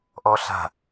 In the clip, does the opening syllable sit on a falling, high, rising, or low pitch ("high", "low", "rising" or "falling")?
high